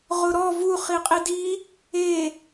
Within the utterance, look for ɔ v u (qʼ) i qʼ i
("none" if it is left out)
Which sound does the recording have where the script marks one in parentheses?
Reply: χ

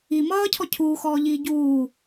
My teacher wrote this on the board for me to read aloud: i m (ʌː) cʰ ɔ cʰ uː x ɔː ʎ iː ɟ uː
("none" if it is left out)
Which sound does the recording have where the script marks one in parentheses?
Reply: ʌː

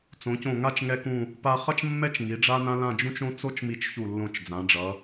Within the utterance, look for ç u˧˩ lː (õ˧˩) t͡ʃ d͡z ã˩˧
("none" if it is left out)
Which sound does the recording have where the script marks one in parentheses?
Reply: õ˧˩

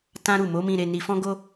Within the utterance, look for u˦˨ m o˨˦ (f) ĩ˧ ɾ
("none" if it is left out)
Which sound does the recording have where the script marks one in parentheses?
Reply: m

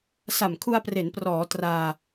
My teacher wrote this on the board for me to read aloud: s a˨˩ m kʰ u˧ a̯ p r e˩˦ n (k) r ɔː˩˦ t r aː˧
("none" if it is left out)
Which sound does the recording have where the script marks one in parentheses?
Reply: p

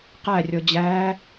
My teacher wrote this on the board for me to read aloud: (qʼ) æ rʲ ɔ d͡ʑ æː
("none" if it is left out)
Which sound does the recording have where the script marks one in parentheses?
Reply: q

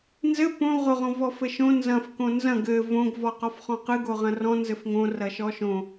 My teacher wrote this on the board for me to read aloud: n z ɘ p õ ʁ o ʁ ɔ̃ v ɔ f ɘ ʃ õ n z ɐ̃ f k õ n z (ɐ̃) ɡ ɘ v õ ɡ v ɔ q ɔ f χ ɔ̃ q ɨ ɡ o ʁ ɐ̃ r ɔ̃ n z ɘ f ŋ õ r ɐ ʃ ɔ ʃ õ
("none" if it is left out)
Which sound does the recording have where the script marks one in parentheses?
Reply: ɐ̃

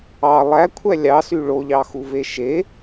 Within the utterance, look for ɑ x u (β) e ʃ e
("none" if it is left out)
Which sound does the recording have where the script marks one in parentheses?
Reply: v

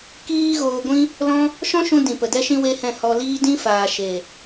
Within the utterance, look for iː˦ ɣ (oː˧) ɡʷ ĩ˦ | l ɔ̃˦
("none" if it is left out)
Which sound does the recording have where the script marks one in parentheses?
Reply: oː˧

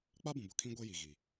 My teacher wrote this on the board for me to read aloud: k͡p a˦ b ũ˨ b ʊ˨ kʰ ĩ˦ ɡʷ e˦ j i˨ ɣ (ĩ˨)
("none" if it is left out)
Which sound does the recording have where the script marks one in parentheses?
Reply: i˨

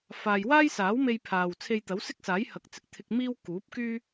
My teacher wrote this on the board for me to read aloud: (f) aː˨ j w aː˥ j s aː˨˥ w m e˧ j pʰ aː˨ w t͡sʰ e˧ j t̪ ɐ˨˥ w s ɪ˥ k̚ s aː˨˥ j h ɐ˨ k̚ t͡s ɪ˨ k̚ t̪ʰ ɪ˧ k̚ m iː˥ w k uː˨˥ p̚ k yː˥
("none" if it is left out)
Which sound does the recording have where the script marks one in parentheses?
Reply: f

